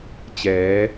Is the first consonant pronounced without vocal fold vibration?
yes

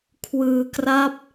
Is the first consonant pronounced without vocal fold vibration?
yes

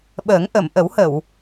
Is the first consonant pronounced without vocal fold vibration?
no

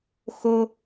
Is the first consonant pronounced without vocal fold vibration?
yes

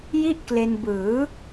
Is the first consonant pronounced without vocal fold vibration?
no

